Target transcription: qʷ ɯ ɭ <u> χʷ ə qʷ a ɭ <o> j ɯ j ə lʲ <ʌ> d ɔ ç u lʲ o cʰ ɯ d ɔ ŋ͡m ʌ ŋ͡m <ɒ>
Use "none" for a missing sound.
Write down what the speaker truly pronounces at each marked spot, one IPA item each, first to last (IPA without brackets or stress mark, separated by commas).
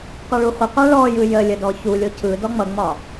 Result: u, ɔ, ə, ɒ